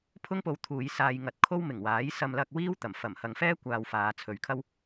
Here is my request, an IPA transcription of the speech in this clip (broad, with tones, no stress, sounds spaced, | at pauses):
pʰ ʊ˥ ŋ p o˨˧ w t̪ʰ uː˨˧ j s aː˧ j ŋ ɐ˧ t̚ kʰ o˥ w m ɪ˨˩ ŋ w aː˨˥ j s ɐ˧ m l ɐ˧ k̚ w iː˥ w t̪ ɐ˨˩ m f ɐ˨˩ m h ɐ˨ ŋ f ɛː˥ kʷ aː˨ w f aː˨˧ t͡sʰ ɵ˨ ɥ kʰ ɐ˥ w